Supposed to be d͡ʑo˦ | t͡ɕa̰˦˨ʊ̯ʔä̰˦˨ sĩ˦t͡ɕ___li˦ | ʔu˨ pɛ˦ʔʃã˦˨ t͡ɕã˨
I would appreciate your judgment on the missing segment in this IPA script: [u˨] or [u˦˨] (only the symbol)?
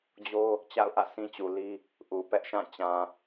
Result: u˨